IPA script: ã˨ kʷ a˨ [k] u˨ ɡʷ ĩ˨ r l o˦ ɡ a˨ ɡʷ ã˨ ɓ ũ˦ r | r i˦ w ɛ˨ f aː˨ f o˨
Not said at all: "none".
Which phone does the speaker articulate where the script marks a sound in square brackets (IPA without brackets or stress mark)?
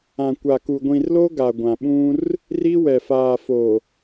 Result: k